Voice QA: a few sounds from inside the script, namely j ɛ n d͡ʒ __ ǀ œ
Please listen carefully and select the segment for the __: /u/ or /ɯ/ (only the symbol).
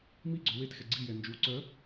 u